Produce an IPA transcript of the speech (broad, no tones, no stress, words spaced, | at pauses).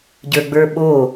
ɟə˞ɡ͡bə˞ɓo